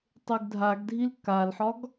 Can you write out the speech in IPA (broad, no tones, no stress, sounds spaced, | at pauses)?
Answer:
tˤ e ɡ dʱ a ɡ dʱ i l k a l ħ ɒ ɡ